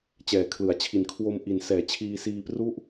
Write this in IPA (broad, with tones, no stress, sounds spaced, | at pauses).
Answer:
t͡ɕ ɛː˩˦ kʰ l ɯ˩˦ a̯ t͡ɕʰ i˨˩ n kʰ w o˧ m ʔ i˩˦ n s ɛː˩˦ t͡ɕʰ iː˧ s iː˧ p r u˥˩ ʔ